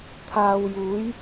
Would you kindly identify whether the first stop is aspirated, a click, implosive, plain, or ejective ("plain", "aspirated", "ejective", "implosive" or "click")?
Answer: aspirated